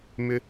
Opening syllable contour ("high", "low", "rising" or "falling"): high